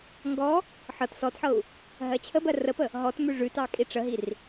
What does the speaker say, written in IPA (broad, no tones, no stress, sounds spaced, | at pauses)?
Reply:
ŋ ɡ ɔ | ħ ɤ t s ɔ t ħ ɤ u̯ | ɦ ɜ t͡ɕʰ ə b ɜ r ə p ə | ɦ ɔ t m ʉ ʐ ʉ t ɑ kʼ i ʈ͡ʂ ə ɦ i r